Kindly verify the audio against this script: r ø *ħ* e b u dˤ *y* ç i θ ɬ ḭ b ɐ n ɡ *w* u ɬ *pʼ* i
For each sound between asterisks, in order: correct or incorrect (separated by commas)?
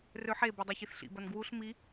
correct, correct, correct, incorrect